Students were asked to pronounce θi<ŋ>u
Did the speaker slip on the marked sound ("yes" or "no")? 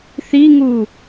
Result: no